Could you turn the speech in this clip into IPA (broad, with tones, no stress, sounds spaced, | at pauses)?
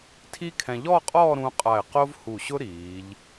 tʰ i˥ kʰ ɛ̃˧ ʎ ɔ˥˧ qʼ ɔː˥˧ ɾ ũ˧ qʼ a˧˩ ɪ̯ q o˥ v h u˧˩ ɕ ʊ˥ ɾ iː˩˧ ʎ